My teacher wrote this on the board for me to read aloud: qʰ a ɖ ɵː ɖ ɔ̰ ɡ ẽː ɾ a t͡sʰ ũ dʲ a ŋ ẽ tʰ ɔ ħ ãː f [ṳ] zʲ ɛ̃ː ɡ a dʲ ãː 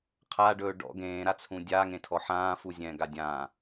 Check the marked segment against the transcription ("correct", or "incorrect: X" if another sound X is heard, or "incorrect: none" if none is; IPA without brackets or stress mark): incorrect: u